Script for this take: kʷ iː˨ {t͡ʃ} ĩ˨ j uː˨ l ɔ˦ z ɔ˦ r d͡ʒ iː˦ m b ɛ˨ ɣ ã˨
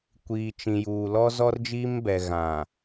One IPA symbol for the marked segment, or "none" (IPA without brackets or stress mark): t͡ʃ